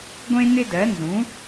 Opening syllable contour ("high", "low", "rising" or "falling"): high